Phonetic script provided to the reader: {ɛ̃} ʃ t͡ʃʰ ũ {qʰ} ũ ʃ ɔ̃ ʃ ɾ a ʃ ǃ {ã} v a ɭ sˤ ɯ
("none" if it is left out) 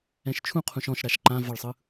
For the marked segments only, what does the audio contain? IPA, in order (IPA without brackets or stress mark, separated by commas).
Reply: ɛ̃, qʰ, ã